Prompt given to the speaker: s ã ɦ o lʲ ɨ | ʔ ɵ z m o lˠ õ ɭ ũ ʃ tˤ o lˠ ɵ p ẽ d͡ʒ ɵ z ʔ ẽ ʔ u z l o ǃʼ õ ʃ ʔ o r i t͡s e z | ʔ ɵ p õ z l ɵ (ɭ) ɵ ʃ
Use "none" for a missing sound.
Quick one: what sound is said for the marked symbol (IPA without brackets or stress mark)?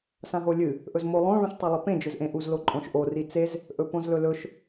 l